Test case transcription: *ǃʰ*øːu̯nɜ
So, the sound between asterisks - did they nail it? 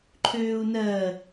yes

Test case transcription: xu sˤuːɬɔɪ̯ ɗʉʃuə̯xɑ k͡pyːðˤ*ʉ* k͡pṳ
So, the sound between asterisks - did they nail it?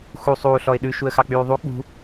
no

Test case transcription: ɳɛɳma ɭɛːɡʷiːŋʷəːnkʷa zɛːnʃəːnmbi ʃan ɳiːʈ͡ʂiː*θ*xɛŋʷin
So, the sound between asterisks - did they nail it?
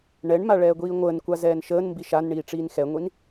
no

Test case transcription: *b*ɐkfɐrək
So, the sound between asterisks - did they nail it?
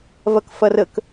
no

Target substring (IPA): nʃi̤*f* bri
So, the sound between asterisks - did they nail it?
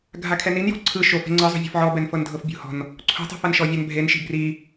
no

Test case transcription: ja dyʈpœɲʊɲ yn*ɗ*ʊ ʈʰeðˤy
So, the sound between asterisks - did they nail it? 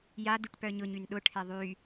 yes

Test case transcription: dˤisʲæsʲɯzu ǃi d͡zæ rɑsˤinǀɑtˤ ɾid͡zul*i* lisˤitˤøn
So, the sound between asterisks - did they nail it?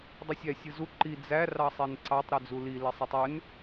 yes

